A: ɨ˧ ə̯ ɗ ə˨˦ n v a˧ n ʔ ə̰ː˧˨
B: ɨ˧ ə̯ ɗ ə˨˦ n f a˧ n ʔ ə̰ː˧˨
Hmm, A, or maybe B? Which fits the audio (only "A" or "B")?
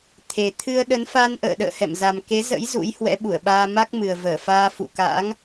B